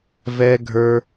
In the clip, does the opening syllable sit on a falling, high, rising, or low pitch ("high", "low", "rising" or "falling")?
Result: high